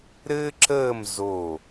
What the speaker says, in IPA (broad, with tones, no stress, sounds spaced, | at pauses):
ɾ ɘː˥ ǁ əː˥˧ m z o˧˩